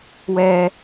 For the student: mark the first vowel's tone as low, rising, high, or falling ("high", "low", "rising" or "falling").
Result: low